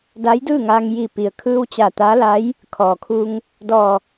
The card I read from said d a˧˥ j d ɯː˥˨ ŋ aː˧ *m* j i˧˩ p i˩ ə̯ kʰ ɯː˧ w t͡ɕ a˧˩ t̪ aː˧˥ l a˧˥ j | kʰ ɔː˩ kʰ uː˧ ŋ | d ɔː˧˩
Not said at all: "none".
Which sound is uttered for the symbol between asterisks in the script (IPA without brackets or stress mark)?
ŋ